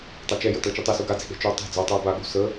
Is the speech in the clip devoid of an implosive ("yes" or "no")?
no